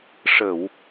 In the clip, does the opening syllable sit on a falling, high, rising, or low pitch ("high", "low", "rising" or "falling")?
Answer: low